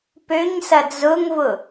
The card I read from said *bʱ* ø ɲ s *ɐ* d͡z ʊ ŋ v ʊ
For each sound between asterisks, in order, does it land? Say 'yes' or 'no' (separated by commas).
no, yes